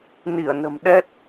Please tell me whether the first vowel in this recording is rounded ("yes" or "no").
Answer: no